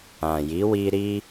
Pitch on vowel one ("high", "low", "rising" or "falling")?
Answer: low